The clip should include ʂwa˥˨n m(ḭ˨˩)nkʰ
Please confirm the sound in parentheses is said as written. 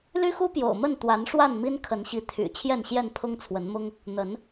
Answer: no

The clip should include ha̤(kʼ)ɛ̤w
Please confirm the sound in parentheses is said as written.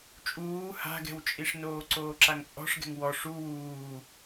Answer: no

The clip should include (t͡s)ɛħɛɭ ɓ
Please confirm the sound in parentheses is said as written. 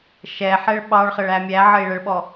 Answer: no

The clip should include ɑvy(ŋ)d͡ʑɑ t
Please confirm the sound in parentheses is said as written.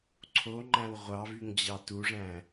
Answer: yes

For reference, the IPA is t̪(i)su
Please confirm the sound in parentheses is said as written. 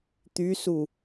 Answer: no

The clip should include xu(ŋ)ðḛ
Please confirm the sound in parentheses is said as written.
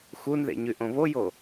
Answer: no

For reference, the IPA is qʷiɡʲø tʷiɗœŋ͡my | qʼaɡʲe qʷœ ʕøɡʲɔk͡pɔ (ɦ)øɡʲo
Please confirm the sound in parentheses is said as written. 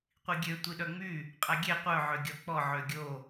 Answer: no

